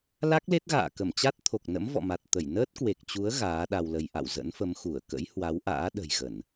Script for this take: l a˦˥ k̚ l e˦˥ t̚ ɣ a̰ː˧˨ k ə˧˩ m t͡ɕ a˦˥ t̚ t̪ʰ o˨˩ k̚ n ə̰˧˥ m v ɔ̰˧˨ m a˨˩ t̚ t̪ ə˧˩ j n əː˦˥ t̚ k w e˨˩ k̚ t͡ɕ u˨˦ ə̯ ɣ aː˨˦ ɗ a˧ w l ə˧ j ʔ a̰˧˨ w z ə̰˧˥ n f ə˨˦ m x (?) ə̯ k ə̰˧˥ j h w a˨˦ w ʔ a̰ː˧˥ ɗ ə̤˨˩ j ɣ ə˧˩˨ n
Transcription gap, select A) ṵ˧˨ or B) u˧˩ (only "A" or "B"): B